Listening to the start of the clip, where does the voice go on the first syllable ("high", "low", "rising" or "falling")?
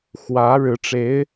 rising